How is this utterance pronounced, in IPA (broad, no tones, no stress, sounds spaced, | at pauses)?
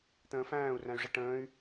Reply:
t̪ ə̃ː f æ̃ː u̯ r æ̃ y̯ ʐ ɪ ʈ ə̃ː y̯